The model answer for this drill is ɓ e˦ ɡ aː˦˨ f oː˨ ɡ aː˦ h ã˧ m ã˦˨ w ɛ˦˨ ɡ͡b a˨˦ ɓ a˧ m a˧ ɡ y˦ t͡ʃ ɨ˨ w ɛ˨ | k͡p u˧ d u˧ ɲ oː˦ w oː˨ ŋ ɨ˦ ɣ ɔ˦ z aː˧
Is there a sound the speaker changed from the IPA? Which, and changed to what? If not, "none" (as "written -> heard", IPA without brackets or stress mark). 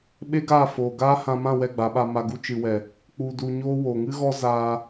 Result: y˦ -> u˦